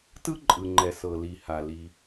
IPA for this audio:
t ɯ˥ ǃʼ ɯ˩ ŋ͡ǃ ɛ˩ s ɤ˩ l i˩ h a˩ l i˩

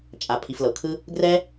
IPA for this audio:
t͡ʃʼ a˩ pʰ i˩ f l ɤ˩ kʰ ɯ˧ | ɡ r ɛ˧

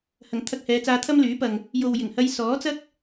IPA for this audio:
h ɐ˨˩ ŋ t̪ʰ ɐ˧ k̚ h ɛː˨˧ t͡s aː˧ t̪ʰ ɐ˥ m l yː˨˥ p ɐ˨ ŋ | j o˨ w j ɪ˨˩ ŋ h ɐ˧ j s ɔː˨˥ t͡s ɐ˥ k̚

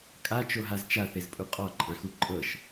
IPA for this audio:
kʼ a t͡ʃ o ɦ a z t͡ʃ a θ e z pʼ u qʼ ɔ ǃʼ ã x u ǃʼ ɤ ʃ

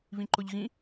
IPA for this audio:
β ĩ ǃ ʊ ʎ ɣ ĩ

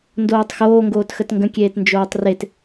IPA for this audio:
n d oː tˤ x oː ŋ ɡ oː t x ə t ŋ ɡ ə̃ kʲ eː t n d͡ʒ oː tˤ r e t

